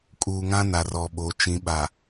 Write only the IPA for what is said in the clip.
kʼ uː˨ ŋ ã˦ n a˨ r ɔ˨ ɓ o˨˦ t͡ʃ ĩ˨˦ ɓ a˨

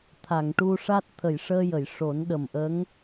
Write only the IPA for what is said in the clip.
t̪ʰ a˨˩˨ ŋ ʈ u˧ ʂ a˦˥ t̚ t̪ʰ ə˨˩˨ j ʂ əː˧ j ə˨˩˨ j ʂ o˨˩˦ n ɗ ə˨˩ m ʔ ə˧˥ ŋ

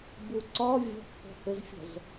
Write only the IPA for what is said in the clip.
b u ǀ ɒ vʲ ɔ̤ p h ɔ̤ h ʏ z fʲ ɔ̤ z

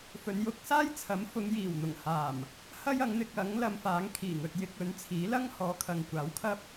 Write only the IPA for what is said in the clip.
f ɵ˨˧ n j ʊ˧ k̚ s aː˥ j t͡sʰ ɐ˨˥ m f ʊ˨˧ ŋ j iː˨˩ w n̪ ʊ˨˩ ŋ h aː˨˩ m | h ɐ˥ j ɐ˨˥ ŋ n̪ ɪ˨˥ k̚ ɐ˨˥ ŋ l ɐ˧ m f aː˨˥ ŋ kʰ iː˨˩ ŋ ɵ˨ t̚ j ɪ˧ k̚ ɵ˨˥ n t͡sʰ iː˨˥ l ɐ˥ ŋ h ɔː˨˧ kʰ ɐ˨ ŋ kʷ aː˨˥ w kʰ ɐ˥ p̚

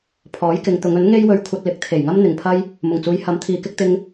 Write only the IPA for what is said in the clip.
pʰ ɔː˨˥ j k ɪ˨˧ ŋ t̪ ʊ˨˧ ŋ ɵ˨˥ n ŋ e˥ j w ɵ˧ ɥ kʷʰ ɐ˧ t̚ l ɪ˨˥ k̚ t̪ʰ e˨˩ j ŋ ɐ˥ m n̪ ɪ˨ ŋ pʰ ɐ˥ j | m ʊ˨˩ ŋ t͡s uː˨˧ j h ɐ˨˥ m t̪ʰ iː˨˧ k ɪ˥ k̚ t̪ ɪ˥ ŋ

